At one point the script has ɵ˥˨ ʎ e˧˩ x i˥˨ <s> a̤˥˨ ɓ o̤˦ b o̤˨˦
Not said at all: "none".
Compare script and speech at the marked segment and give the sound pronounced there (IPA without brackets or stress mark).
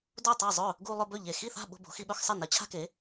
θ